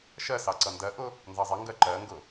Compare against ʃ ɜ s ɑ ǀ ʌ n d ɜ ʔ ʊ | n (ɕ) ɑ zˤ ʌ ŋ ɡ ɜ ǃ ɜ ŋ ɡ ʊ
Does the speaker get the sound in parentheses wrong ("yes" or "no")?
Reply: yes